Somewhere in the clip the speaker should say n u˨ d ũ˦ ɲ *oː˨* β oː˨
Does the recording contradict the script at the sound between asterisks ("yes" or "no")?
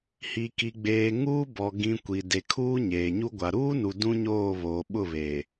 yes